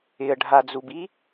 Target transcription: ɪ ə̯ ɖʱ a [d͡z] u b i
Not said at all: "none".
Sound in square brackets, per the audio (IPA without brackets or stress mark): d͡z